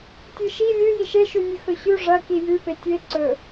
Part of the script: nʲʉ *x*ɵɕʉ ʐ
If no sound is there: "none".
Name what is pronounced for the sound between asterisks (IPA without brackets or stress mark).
x